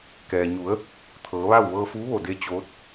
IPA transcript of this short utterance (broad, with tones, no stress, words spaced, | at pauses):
kɛː˩ ɲu˩˧ə̯ | t̪ʰɤː˩˧ʋa˥˨w ʋɤː˧fuː˧˥ʋo˧˩de˧ t͡ɕoː˧˥t̚